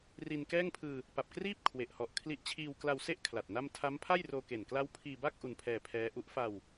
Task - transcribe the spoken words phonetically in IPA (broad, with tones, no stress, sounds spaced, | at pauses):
r i˧ n k ɛː˥˩ ŋ pʰ ɯː˧ | p a˨˩ p̚ k r iː˥˩ p̚ kʰ w e˨˩ ʔ h ɔ˨˩ ʔ kʰ l i˦˥ ʔ t͡ɕʰ iː˧ w k l a˧ w s e˥˩ ʔ kʰ l a˨˩ t̚ n a˥˩ m tʰ a˦˥ m pʰ a˥˩ j r oː˧ k e˨˩ n k l a˦˥ w pʰ iː˧ b a˥˩ k̚ ʔ u˧ n pʰ ɛː˧ pʰ ɛː˦˥ ʔ u˦˥ ʔ f a˧ w